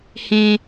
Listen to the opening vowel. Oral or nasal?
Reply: nasal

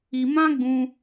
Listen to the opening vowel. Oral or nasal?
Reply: oral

